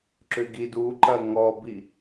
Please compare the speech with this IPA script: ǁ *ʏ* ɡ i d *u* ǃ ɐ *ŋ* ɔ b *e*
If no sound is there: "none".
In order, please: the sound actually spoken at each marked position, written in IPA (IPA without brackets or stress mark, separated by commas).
ʏ, u, ŋ, i